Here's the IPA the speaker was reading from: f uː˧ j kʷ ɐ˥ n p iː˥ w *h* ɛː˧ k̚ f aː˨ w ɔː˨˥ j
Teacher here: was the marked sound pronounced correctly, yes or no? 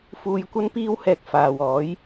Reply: yes